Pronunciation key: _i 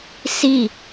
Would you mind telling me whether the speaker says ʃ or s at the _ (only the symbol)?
s